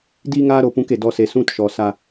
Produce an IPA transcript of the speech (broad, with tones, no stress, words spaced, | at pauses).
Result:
di˦ŋaː˦ɾo˧pũ˧k e˨dɔ˦se˧ sũ˦t ʃɔ˨sa˧